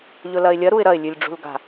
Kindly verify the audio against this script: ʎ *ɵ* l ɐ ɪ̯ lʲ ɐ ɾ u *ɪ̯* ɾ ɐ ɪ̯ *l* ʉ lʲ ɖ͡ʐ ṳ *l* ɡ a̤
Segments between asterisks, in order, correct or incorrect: correct, correct, incorrect, correct

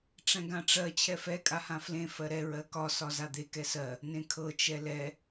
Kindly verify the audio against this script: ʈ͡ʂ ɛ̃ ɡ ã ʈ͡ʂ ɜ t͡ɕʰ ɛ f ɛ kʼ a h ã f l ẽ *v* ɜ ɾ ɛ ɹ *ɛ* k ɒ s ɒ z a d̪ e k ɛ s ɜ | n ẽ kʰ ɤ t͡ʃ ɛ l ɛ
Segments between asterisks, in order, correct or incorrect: incorrect, incorrect

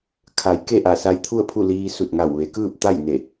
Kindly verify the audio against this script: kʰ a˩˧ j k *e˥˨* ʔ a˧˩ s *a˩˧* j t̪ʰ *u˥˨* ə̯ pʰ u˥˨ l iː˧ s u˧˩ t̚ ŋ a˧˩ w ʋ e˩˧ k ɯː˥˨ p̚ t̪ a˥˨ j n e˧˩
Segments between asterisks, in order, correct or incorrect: correct, incorrect, correct

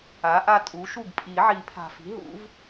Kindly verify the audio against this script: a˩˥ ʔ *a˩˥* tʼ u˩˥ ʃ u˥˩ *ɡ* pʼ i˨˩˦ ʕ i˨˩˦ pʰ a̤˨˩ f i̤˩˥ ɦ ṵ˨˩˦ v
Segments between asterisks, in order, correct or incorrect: incorrect, correct

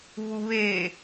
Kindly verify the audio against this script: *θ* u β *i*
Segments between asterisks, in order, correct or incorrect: incorrect, incorrect

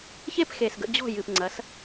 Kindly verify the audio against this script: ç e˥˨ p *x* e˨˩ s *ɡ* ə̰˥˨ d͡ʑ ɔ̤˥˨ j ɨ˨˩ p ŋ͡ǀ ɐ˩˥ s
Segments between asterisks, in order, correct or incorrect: correct, correct

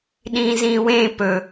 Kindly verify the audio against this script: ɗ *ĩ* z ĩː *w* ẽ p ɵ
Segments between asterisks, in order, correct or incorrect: incorrect, correct

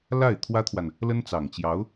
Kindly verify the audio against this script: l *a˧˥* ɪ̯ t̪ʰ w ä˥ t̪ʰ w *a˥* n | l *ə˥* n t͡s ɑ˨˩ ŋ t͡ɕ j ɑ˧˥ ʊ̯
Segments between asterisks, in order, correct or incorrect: incorrect, incorrect, correct

